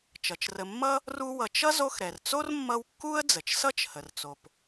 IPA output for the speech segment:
t͡ʃʌ˩t͡ʃrə˨ mːʌ˥ | ru˦wʌ˨t͡ʃ ʌ˥zo˦xɾɛ˩rt͡so˥r mːʌ˦wkːu˥ə̯ d͡zə˩t͡ʃsʌ˥t͡ʃhə˩rt͡so˩p

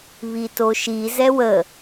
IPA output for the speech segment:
βitoʃi zɛwə

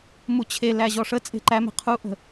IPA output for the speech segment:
mut͡ɕʰelæ ʑɔʂət͡sʼe̤ ǃæme̤ qʰuʔə̤

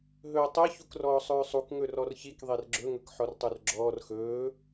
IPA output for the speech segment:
ɦɵːtˤe çukrɔːsˤɵːsˤuk ŋɵrɔrçik ðˤerɡ͡ǁɵ ŋɵkħɔrtˤurɡ͡ǁɔːr xɵː

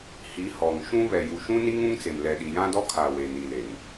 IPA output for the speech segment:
hi˨˦hɔ˨ŋʃũ˦ βɛ˨ju˨ʃũ˦ni˦ŋ ũ˦ŋt͡se˨m lɛ˨ɗi˨jã˦dɔ˦ kʰa˨ we˨ni˨le˨ŋ

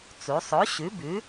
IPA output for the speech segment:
t͡su˩˧sˤo˨˥ ɕʉ˨˥bʉ˨˥

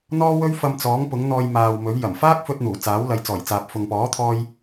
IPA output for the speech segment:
n̪ɔː˥wɵ˥ɥfɐ˧mt͡sɔː˨˥ŋ pʊ˨˥ŋn̪ɔː˧jmaː˨wmɵ˨˥ɥ jɐ˨˩mfaː˥k̚fɵ˧t̚n̪uː˨˩ t͡saː˨˥wlɐ˨˧jt͡sɔː˨˩jt͡saː˨p̚ fʊ˨ŋpɔː˨˥t̪ʰɔː˧j

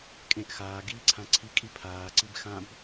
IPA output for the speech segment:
kʼẽʔ xaːɡiːǀʰã ǀʰikʼi pʰaːǀib xãb

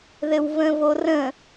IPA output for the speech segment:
ðɘwvə̃vorə̃

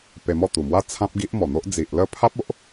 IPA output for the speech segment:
pe˧mɔ˥˧ t̪u˨˩mwa˦ t͡sʰã˦p̚ɡi˦ʔ mɔ˨˩n̪o˦ʔ d͡zi˨ʔlə˦ pʰa˦p̚o˦ʔ

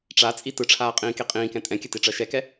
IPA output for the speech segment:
ʈ͡ʂat͡sʼi tɯʈ͡ʂʰaːqʼĩːke qʼĩːkɛ̃ tʼɛ̃kʲətiʈ͡ʂɜ ʃɛkɛ

